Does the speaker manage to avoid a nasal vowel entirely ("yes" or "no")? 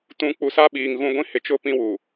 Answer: no